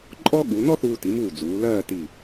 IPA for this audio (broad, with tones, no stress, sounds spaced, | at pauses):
ǃʼ ɔ˥ ɠ u˩˧ n ɔ˥ θ uː˧ t i˩˧ m uː˧˩ d͡z uː˩˧ l ɜː˥˧ t i˧˩